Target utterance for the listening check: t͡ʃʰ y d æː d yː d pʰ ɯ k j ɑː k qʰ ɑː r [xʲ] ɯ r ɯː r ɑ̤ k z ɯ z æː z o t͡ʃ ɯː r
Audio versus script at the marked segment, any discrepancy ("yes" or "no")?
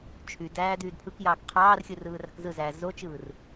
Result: no